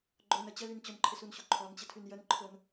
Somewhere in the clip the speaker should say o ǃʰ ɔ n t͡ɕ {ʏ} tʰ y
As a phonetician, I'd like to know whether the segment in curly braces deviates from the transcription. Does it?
yes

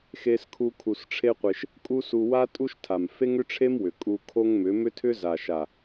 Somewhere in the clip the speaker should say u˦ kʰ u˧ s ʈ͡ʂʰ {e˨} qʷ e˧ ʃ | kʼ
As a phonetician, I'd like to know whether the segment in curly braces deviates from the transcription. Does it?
yes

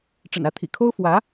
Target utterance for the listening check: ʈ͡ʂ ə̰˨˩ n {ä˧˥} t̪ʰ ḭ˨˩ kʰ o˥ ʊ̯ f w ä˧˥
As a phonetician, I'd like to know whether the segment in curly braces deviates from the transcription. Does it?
no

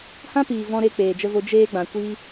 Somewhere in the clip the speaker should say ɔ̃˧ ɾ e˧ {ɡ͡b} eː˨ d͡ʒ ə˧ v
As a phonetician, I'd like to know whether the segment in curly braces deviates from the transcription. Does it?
yes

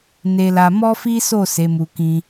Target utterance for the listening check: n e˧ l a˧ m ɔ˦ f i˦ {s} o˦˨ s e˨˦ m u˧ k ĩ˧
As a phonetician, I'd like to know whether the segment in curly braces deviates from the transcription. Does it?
no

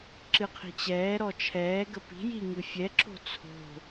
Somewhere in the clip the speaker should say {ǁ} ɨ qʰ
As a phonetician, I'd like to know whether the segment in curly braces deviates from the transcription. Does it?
no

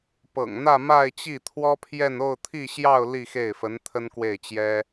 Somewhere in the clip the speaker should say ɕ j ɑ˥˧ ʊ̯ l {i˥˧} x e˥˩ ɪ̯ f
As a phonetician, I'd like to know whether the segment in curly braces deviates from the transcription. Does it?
no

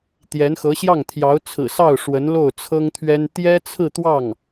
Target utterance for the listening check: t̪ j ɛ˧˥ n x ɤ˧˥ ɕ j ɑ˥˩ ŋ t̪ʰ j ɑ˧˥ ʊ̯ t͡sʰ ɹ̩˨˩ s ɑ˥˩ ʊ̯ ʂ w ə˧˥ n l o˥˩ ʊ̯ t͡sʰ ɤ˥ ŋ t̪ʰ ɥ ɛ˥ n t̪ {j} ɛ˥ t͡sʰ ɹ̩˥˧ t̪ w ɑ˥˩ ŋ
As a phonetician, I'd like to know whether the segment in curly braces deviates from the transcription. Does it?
no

